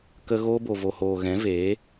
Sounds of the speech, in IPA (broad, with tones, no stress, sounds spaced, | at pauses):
k ə˧ ɣ oː˧ b o˨ v o˨ h oː˨ ɣ ɛ̃˨˦ v eː˨˦